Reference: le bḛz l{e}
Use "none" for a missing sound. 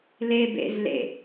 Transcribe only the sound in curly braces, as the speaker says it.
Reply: ḛ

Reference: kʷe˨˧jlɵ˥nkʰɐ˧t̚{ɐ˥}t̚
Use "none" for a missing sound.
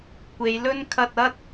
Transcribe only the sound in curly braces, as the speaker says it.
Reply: ɐ˥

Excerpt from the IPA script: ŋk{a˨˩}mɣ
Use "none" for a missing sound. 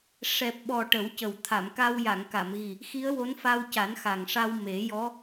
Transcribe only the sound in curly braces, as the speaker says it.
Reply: a˨˩˨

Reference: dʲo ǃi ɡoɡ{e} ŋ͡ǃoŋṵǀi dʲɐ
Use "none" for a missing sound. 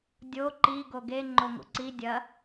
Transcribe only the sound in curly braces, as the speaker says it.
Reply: e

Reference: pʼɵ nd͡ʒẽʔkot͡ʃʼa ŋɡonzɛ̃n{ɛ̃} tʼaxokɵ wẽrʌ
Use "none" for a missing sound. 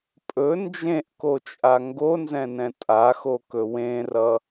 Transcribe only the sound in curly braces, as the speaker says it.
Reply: ɛ̃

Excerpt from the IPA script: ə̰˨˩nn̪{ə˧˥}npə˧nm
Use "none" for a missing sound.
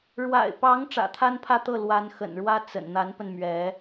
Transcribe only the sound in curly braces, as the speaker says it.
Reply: a˧˥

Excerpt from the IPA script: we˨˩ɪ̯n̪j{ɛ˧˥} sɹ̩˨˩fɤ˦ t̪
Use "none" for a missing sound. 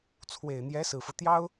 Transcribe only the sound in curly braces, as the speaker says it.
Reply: ɛ˧˥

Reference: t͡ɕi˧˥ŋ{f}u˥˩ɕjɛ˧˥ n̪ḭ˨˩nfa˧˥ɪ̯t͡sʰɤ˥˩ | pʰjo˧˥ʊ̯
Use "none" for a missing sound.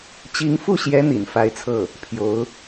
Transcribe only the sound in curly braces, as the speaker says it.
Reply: f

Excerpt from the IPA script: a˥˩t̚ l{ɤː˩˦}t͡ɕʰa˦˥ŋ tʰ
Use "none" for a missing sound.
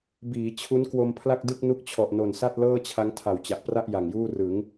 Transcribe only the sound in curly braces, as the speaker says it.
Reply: ɤː˥˩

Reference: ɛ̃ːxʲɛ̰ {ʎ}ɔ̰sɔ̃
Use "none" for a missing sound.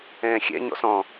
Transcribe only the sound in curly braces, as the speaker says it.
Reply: ɲ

